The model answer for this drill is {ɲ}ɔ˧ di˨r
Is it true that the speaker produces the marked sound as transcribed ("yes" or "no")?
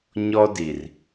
yes